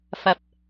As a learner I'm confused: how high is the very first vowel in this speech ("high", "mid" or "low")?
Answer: low